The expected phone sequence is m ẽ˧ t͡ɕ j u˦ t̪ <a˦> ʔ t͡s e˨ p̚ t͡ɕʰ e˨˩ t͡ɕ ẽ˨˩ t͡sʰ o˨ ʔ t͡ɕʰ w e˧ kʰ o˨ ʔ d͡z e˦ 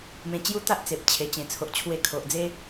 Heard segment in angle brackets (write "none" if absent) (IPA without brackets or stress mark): a˦